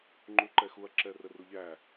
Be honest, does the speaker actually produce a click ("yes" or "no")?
yes